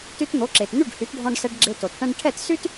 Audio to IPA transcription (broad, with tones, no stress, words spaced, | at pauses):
ty˧tn̪o˩˥ǁe˩tn̪y˥˩ɖ hy˩˥tɖʱɔ̃˧ɖsɛ˧ɖ ɡ͡ǁe˧to˩t ʈɛ̃˧ɖ ʈʰɛ˥˩t sy˥t